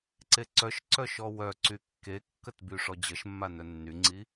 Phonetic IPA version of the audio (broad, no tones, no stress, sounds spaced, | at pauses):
ǀ e ǀ œ ʃ ǀ œ ʃ ɔ w œ ǀ y kː e kː ə t b y ʂ ɔ d͡ʑ ə ʃ mː a n œ nː y ŋ͡ǀ i